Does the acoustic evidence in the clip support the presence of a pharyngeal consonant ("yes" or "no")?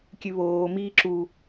no